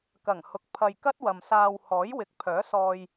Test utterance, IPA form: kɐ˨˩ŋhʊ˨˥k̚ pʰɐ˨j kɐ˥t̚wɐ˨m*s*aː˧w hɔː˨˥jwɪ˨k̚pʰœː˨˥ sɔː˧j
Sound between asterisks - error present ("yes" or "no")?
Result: no